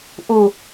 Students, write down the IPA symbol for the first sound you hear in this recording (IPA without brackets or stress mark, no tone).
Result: ʔ